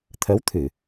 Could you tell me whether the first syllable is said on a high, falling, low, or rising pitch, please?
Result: rising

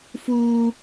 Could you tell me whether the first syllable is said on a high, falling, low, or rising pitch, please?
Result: high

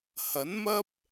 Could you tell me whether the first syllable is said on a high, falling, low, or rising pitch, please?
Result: rising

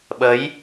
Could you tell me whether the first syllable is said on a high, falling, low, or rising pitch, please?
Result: rising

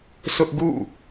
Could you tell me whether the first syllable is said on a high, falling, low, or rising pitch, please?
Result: high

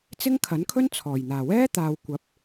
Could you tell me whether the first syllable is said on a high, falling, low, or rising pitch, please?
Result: high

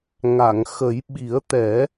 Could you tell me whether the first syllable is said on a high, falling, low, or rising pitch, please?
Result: low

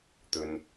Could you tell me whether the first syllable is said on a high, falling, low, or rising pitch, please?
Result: low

